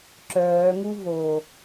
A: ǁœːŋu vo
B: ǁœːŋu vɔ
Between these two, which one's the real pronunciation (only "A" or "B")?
A